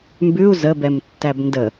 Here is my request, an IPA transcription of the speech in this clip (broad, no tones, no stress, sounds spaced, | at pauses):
m b ʉ u̯ z ə b ɛ m tː æ b n d ə